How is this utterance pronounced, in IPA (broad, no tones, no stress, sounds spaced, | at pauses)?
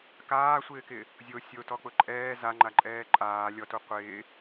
k aː sʷ ɪː k ɪ | zʲ o sʲ o t ɔ k͡p ʊ ǃʼ ɛː z a ŋ͡ǃ a ǃʼ ɛː ǃʼ aː lʲ ɔ t u qʷ ɪː